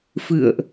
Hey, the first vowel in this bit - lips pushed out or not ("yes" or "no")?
no